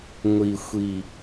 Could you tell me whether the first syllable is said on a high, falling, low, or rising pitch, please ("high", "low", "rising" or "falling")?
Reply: low